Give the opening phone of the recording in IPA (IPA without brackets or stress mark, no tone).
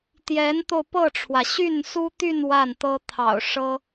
t̪